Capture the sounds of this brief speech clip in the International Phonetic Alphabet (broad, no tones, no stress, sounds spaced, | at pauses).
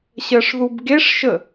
ɕ ɜ ʂ ð u b ɡ e ʂ ʃ ə